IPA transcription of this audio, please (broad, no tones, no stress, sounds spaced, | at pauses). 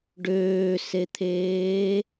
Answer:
ɖ øː s e t̪ʰ eː